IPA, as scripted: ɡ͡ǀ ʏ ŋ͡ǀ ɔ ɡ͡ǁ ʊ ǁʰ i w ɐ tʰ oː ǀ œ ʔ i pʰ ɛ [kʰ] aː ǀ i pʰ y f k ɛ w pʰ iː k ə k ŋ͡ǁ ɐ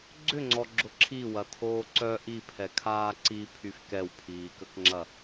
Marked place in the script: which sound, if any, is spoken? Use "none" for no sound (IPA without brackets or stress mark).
kʰ